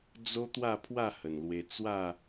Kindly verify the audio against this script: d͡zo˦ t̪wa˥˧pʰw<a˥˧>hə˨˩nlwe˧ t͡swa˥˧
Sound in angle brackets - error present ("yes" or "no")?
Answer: no